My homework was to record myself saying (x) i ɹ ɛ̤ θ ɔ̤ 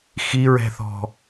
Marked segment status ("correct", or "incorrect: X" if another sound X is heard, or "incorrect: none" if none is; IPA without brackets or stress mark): correct